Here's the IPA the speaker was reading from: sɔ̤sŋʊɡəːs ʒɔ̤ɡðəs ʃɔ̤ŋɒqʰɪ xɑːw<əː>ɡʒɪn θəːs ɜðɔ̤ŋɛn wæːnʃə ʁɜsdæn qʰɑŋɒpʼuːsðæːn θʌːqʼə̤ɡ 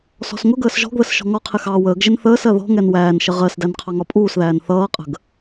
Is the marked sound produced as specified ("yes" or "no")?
yes